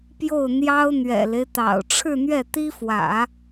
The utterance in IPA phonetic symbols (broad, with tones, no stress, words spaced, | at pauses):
pjo˥˩ʊ̯n̪jɑ˥ʊ̯ n̪ɥɛ̰˨˩le˦ɪ̯t̪ɑ̰˨˩ʊ̯ ʈ͡ʂʰɻ̩˥˧n̪ɥɛ˥˩t̪i˥fwä̰˨˩˦